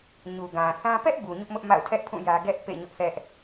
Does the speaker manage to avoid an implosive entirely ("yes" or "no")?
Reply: yes